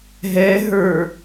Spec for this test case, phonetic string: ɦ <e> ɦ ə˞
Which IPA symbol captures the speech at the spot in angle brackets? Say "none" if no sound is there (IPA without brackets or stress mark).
ɛ